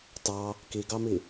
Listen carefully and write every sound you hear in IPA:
tɑ | kiɡɑmi

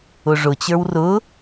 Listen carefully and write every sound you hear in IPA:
ʊʐʊt͡ɕə˞w rʊ

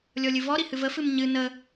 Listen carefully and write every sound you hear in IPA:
lʲɔlʲɨvɔɾi hɨvəfɨm ɲɨ nə

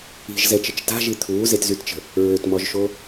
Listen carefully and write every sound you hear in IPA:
i̤ʒzɛt͡ʃət͡ʃ ta̤ʒi t̪ʰuːzetzytt͡ʃə̤ | ɹøtmɔʒʃo

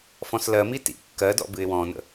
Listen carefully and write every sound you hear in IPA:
fɔ̃slɜmi tḭ kːɜdɔ̰ bɨɪ̯wɔ̃nə̰

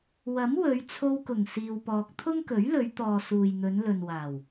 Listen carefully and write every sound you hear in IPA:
wɐ˨˥mwɵ˨˧ɥt͡sʰo˧wkʊ˨˩ŋ siː˧wpɔː˧k̚ t̪ʰʊ˥ŋkɵ˨˥ɥlɵ˨˧ɥt̪ɔː˨ suː˨jn̪ɵ˨˧nlɵ˨nwaː˨˩w

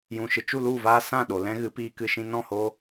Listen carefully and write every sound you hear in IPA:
jũ˨ʃɨ˨ t͡ʃu˦˨lu˦˨vaː˧ sã˦˨ɗo˨ lɛ̃˦ɣɨ˨˦piː˧ kɨ˧ʃĩ˧ nɔ̃˦˨hoː˧

